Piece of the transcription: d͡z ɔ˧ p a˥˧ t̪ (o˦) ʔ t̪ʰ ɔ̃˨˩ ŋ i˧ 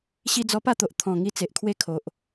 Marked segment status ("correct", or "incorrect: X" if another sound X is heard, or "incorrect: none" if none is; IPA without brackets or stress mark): incorrect: o˨